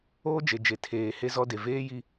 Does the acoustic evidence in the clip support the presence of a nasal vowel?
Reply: no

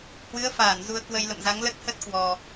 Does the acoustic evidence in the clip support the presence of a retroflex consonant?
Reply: no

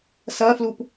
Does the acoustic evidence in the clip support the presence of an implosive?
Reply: no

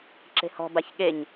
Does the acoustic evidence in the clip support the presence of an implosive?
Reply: yes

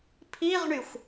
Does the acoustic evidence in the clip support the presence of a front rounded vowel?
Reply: yes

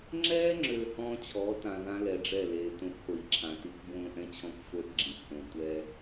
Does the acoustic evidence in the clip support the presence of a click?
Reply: yes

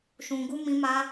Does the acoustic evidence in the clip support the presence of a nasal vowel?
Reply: yes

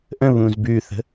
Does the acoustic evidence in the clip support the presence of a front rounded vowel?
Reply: no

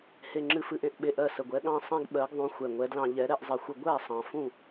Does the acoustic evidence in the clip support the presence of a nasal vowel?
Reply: yes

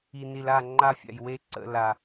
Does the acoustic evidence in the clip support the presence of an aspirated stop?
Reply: no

